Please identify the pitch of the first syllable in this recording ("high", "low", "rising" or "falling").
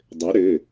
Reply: rising